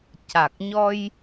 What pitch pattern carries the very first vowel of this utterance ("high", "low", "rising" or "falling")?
low